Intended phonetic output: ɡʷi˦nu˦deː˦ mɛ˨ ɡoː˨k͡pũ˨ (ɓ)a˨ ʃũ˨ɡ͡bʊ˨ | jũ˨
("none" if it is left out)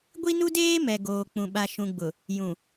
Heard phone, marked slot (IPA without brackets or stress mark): ɓ